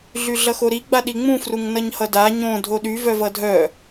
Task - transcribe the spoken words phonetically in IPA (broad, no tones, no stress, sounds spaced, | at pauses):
ɮ y ɮ ʌ x o ɾ i ɡ͡b a ɗ i ŋ͡m ũ f r u ŋ n ʌ ɲ h ʌ d a ɲ õ dʱ o ɗ y v œ v ʌ dʱ œ